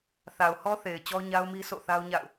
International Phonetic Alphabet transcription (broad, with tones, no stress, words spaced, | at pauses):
θa˨ʊ̯hɔ˦θe˨ɪ̯ t͡ɕɔ˦ɲa˦ʊ̯mi˦ sʰo̰˦˨θa˦ʊ̯ ɲa̰˦˨ʊ̯